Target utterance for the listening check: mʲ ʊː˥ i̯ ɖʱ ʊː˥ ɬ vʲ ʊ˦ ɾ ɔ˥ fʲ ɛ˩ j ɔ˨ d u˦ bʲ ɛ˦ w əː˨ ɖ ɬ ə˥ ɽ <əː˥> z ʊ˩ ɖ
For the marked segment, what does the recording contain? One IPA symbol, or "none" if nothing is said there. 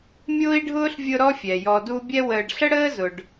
əː˥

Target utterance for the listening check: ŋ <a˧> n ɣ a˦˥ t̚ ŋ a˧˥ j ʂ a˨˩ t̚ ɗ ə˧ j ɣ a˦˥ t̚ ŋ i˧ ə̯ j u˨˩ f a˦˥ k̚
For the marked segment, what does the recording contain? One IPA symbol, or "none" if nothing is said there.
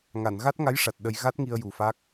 a˨˩˨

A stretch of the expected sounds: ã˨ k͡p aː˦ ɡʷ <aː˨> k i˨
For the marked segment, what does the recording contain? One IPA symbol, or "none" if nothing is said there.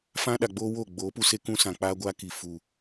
aː˦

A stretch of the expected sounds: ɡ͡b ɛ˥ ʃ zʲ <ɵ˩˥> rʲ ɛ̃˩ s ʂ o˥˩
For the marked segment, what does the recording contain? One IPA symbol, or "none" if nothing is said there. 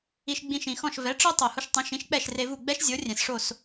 o˩˥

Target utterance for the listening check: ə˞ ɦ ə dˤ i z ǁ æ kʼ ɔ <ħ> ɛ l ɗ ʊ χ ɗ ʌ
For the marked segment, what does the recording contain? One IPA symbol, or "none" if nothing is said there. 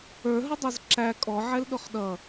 ʕ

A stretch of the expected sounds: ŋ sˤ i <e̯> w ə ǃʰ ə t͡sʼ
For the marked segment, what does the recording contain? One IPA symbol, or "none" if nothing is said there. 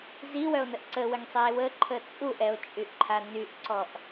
e̯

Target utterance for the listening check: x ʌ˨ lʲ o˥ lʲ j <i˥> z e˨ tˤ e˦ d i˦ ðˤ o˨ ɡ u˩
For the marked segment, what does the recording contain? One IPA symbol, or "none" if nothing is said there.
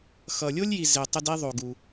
i˨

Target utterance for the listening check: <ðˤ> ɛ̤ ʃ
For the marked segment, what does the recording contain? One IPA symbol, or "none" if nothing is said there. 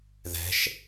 ð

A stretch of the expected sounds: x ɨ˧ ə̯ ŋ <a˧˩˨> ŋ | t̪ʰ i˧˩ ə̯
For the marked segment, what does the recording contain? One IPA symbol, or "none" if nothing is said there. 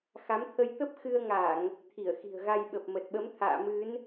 a˧˩˨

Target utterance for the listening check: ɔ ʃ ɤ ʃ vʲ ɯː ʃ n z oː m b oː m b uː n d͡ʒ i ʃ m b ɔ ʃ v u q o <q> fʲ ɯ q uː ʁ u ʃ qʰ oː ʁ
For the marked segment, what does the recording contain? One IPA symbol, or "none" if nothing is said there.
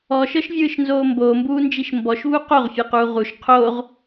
ʁ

